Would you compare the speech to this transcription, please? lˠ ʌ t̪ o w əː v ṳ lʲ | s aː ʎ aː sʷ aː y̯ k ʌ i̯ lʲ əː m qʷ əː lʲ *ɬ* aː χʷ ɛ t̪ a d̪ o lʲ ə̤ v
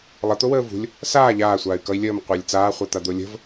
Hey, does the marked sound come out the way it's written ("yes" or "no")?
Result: no